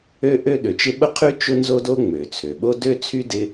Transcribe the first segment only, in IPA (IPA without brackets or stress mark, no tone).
ø